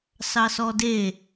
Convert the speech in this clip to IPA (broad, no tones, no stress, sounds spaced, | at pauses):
s ɑ s ɔ d e